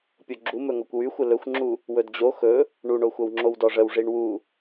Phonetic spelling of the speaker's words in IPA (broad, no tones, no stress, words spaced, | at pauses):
pʲoɡ͡ǁu mɵŋokʷwyxʷə lɵxʷŋ͡ǁu | wɵdd͡ʑo xɵ | ɳuɳoxʷʌw ŋ͡ǁowdɔʐəw ʐiɳwu